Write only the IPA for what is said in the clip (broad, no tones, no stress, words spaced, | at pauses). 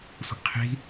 sʷə̤ʔqʰi̤